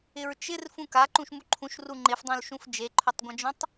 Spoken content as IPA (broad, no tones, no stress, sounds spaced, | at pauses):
ɪ ɹ t͡ʃ ɪ r f ũ k a ǃ ũ ʃ m u ǃʰ ũ ʃ r u ŋ͡ǃ ɪ f dˤ ũ l ʃ ũ f d͡ʒ e ǃʰ ʉ tˤ ɡʷ ã d͡ʒ ũ tˤ